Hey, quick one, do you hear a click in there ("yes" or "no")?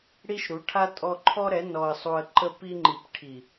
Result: yes